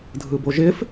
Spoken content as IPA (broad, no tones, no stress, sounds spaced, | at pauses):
dʱ ɯ b o ʒ ɪ f